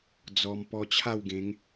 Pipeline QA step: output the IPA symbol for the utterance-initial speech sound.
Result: d͡z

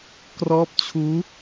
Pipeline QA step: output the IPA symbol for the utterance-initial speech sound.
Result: k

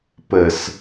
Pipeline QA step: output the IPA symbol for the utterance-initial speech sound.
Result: p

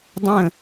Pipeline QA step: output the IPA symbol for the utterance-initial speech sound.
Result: dˤ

